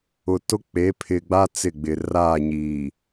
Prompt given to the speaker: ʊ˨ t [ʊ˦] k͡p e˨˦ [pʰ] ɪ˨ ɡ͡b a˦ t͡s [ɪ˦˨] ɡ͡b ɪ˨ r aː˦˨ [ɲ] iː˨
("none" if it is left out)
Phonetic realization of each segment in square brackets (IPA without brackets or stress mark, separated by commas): ʊ˦, pʰ, ɪ˦˨, ɲ